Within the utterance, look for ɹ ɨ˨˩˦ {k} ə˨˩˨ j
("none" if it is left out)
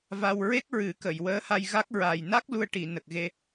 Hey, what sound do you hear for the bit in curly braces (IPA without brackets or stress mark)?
k